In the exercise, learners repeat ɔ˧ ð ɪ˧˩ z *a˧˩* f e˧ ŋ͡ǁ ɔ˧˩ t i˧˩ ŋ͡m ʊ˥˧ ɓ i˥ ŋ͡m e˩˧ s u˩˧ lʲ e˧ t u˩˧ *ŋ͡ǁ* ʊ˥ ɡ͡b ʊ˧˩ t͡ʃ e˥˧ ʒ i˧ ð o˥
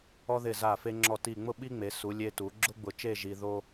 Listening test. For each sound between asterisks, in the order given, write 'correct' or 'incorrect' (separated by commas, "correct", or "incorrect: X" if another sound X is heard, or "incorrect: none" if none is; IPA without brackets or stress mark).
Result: correct, incorrect: ɡ͡ǁ